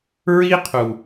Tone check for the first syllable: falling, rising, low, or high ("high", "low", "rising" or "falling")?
high